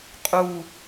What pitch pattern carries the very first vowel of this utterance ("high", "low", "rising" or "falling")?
falling